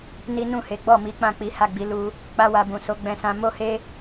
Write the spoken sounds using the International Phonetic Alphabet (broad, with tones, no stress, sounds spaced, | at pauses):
n i˦ n ũ˦˨ h e˨˦ ɡ͡b ɔ˦˨ m i˨˦ k͡p ã˦˨ k͡p i˨˦ h a˦˨ ɡ͡b i˧ l u˦ | k͡p a˦ w a˧ b ũ˨ s o˨˦ ɡ͡b ɛ̃˧ s ã˧ m o˦ h e˦